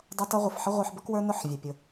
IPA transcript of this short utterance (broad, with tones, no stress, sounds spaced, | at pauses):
dˤ ʌ˦ t ʌ˦ ʁʷ ə˨ f ħ ə˦ ʁʷ ə˞˧ ħ b ʌ˦ k w ə˞˦ n ʊ˦˨ ħ vʲ æ˨ pʲ ʊ˨